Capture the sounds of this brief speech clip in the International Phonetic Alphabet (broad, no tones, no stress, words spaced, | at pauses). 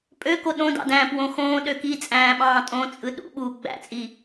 pʼøko ɗõdɑ̰dæ̃ːpwõ xõːɗø kit͡sʼæ̃ːɓɑ̃ː tʼõt͡sʼɯ ɗṵɓuː ɡ͡bæ̰t͡sʼi